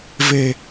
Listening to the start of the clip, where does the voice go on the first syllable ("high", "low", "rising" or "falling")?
low